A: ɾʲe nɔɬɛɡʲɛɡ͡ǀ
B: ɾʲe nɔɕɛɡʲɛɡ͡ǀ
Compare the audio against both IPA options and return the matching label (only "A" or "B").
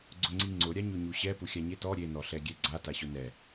A